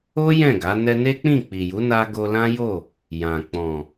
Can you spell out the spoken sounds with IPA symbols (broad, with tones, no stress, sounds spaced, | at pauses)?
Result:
o˦ j ɛ̃˦˨ ɡ a˨˦ n ɛ˧ n e˦ k͡p ĩ˦˨ k͡p i˨ j u˨˦ n a˧ ɡ o˧ l ã˦ j o˦˨ | j ã˨ k͡p ɔ̃˨